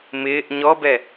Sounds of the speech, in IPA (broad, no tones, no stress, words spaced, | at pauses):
mɪːʔ ɲɔbɛ